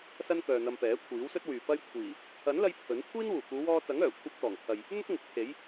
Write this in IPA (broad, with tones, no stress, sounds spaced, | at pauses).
s ɐ˥ n k œː˨ n̪ ɐ˧ m p ɛː˨˥ kʷʰ iː˨˥ w s ɵ˥ t̚ w yː˨ p ɐ˥ j kʷʰ iː˨˩ | ɐ˨˥ n l ɐ˧ j pʰ ɵ˨˥ n kʷʰ iː˥ n w uː˨˩ k uː˨˧ w ɔː˥ t͡s ɐ˨˥ ŋ œː˨˩ kʷʰ ɐ˧ p̚ t̪ ɔː˨˩ ŋ pʰ ɐ˨ j | n̪ ʊ˥ k̚ ŋ ʊ˨˥ k̚ pʰ e˨˥ j